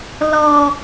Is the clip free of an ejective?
yes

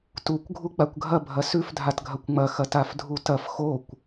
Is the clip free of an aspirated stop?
yes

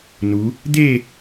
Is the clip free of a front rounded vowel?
yes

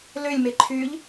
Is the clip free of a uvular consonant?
yes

